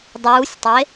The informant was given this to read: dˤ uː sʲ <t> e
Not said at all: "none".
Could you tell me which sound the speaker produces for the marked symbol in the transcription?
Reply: tˤ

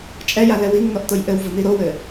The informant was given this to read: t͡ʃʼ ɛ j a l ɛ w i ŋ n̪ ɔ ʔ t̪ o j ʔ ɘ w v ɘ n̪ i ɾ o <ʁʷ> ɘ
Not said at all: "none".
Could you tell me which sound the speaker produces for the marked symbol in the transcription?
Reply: w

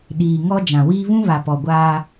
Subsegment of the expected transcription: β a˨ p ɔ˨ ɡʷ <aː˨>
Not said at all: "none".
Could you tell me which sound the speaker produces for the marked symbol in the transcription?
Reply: aː˦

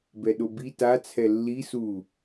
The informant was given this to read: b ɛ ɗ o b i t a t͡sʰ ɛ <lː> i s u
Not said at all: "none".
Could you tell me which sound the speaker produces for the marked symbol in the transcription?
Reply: lː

